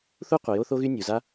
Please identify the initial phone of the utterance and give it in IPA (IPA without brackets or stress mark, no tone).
θ